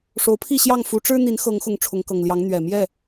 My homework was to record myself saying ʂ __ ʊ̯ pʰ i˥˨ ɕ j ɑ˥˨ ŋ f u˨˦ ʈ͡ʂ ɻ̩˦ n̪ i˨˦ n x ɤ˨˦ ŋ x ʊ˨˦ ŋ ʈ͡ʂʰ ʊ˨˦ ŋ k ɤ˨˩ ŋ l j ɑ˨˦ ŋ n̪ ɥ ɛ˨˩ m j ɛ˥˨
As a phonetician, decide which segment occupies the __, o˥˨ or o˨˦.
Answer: o˨˦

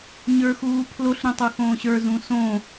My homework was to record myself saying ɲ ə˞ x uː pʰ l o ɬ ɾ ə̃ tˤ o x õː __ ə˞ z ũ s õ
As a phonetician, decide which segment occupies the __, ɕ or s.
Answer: ɕ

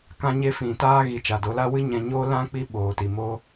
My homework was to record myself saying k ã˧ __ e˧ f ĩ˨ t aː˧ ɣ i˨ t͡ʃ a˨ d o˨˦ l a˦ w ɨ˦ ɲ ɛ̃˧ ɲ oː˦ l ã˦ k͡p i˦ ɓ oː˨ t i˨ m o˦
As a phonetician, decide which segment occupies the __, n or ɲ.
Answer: ɲ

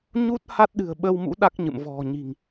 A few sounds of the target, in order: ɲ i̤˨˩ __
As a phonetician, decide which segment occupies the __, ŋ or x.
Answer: ŋ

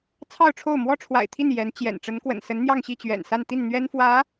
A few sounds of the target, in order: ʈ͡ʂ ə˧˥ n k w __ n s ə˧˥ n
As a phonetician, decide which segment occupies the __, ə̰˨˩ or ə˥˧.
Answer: ə̰˨˩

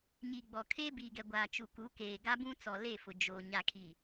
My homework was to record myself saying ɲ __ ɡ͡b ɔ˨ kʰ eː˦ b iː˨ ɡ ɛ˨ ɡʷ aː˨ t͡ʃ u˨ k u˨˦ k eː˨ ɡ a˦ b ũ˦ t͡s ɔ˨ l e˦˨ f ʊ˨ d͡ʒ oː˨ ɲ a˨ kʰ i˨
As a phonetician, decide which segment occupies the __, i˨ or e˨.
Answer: i˨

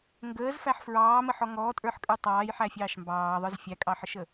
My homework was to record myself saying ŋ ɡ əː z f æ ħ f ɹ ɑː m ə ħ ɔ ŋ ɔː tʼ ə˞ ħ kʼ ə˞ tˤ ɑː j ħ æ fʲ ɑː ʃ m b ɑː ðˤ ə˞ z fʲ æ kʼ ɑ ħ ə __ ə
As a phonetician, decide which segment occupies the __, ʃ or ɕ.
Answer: ʃ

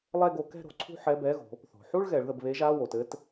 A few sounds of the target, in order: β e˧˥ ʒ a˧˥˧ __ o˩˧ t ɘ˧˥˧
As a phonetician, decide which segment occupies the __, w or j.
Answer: w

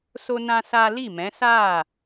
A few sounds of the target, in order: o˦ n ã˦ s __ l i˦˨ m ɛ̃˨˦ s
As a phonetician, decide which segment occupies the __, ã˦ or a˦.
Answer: a˦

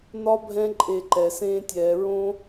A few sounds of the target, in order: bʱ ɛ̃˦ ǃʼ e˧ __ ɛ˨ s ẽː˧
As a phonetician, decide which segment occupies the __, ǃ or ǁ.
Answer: ǃ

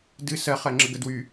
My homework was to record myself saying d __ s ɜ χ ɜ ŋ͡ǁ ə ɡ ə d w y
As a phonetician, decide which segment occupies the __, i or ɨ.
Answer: ɨ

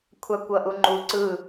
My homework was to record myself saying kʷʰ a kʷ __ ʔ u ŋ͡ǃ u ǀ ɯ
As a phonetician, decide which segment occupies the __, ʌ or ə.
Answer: ʌ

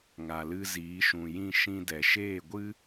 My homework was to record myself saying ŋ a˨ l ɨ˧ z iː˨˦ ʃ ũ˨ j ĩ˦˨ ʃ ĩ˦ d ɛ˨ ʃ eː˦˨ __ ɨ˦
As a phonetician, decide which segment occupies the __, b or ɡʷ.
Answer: ɡʷ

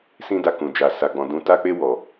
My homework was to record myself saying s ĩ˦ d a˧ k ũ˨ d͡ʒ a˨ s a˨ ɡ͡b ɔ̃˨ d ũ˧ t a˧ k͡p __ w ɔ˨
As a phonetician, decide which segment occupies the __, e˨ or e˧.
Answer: e˧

